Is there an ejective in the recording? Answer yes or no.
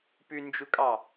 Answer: yes